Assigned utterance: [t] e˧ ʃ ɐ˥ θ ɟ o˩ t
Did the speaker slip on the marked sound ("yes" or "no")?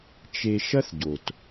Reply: yes